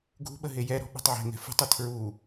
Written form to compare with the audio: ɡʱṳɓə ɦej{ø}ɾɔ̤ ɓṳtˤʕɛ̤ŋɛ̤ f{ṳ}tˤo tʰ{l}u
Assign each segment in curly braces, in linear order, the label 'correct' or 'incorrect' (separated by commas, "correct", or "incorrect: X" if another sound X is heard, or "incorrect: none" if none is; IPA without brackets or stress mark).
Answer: incorrect: ɛ, correct, incorrect: ɹ